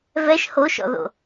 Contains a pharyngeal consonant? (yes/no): no